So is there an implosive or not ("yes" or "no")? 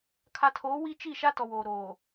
no